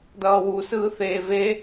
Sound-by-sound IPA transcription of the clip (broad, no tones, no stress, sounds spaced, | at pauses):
d ʌː w u s ɯː θ eː v e